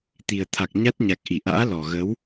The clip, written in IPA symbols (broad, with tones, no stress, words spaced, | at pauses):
t̪i˨˩ə̯t̪ʰa˨˩k̚ɲa˦˥t̚ɲa˨˩k̚ ʔi˧˩ʔa̰ː˧˥lɔ˨˩ ɣə˨˦w